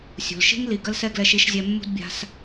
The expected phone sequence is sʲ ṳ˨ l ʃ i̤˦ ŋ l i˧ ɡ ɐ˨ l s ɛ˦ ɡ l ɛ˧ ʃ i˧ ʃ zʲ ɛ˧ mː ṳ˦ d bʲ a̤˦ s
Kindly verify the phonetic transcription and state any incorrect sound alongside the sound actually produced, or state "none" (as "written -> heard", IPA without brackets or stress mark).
ɐ˨ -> ɐ˦